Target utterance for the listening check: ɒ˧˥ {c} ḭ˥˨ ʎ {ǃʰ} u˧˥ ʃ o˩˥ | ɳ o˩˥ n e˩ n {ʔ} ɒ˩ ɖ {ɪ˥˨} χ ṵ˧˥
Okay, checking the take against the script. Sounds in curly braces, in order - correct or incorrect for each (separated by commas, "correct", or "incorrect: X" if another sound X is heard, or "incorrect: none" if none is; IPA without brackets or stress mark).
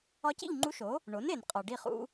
correct, incorrect: ŋ͡ǃ, incorrect: qʼ, incorrect: i˥˨